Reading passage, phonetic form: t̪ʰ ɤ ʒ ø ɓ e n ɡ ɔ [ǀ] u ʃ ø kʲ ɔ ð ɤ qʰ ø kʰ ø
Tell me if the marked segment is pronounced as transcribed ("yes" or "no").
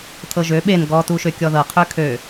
no